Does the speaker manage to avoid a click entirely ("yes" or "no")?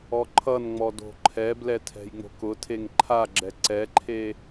no